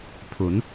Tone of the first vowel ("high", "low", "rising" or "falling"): rising